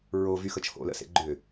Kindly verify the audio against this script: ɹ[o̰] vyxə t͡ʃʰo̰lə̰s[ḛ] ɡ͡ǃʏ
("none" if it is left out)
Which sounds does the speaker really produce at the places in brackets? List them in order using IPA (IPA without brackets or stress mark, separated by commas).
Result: o, ḛ